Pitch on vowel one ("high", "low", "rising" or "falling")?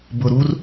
low